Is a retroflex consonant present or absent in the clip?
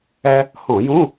absent